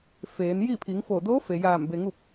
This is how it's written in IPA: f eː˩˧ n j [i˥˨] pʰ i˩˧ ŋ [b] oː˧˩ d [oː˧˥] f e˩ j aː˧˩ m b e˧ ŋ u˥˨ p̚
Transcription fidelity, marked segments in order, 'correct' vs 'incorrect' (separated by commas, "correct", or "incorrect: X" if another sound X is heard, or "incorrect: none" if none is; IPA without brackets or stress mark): correct, incorrect: f, correct